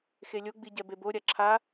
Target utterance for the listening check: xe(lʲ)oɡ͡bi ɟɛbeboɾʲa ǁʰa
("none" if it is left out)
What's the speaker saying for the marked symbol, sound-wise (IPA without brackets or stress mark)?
lʲ